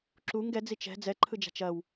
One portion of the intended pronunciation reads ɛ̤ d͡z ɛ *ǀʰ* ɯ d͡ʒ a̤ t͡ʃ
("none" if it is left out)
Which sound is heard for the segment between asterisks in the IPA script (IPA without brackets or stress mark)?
ǃʰ